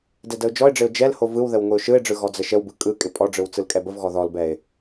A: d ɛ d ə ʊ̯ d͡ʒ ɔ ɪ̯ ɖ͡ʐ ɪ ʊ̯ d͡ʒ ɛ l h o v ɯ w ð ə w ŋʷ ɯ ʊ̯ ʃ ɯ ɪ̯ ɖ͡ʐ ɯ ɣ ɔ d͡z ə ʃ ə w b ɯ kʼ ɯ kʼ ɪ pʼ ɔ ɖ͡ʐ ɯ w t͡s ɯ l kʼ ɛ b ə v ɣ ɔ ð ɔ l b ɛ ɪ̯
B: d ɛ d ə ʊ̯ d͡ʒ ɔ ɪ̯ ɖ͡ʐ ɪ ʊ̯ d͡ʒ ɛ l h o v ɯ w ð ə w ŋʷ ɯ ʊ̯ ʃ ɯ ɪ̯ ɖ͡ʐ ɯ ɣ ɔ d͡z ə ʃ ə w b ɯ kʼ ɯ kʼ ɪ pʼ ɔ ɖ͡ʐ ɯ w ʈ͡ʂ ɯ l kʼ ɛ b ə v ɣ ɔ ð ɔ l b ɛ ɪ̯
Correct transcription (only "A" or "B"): A